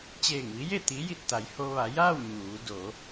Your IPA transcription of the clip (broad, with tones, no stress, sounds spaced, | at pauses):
t͡ɕ eː˧˩ ŋ ʋ i˧˥ j e˥˨ t̪ i˧˥ j i˧˩ t̚ t̪ a˩˧ j h o˧ ʋ a˩˧ j aː˥˨ w ɲ uː˩˧ d o˩˧